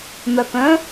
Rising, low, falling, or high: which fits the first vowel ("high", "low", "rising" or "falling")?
low